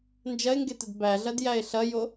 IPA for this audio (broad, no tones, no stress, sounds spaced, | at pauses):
n d͡ʒ ɐ e̯ ŋ ɡ e t ə d b æ ɮ ɐ d j æ e̯ ɬ ɐ j o